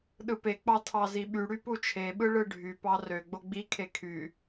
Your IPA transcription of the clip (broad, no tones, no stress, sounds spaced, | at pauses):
ɗ ɯ p e k͡p ɑ tʰ ɑ z i ɓ y ɽ y p u t͡ʃʰ e ɓ ɯ ɭ ɯ ɖʱ y p ɑ r ø ɡ͡b o ɡ͡b i kʰ e kʰ y